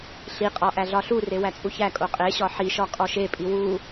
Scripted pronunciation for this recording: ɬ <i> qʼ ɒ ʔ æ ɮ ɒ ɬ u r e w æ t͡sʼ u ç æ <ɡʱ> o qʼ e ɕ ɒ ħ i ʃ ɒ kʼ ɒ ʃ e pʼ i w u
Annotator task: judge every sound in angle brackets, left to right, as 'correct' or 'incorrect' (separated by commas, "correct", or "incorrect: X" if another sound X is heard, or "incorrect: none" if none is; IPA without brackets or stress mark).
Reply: correct, incorrect: kʼ